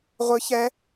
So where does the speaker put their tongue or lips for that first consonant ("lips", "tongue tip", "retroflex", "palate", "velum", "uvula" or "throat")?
uvula